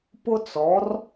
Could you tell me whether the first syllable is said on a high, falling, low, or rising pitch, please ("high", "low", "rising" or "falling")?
high